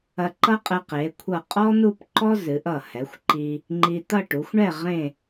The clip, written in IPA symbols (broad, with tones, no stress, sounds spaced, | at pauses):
ɐ˧ ǃ ʌ˥ qʼ ɛ˧ q e˩˧ kʷʰ ʌ˧˩ qʼ ɔ˥ n̪ u˥˧ p ǃ ɔ˥ z ɨ˩˧ ʔ ʌ˧˩ h ɛ˩˧ xʷ ǃ i˧ | ŋ͡ǃ i˧ t̪ ʌ˥˧ ʈ u˩˧ xʷ ɳ ɛ˥˧ ʁ ẽ˥˧